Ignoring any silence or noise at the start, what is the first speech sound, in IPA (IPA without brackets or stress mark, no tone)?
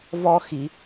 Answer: v